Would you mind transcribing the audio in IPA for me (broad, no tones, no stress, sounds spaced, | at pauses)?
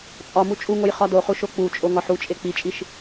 t͡sʼ ɒ m u t͡ʃʼ u ŋ o j χ ɒ d o χ u ʃ o k͡p u t͡ʃʼ o ŋ ɒ ħ u t͡ʃʼ e k͡p i t͡ʃʼ i ʃ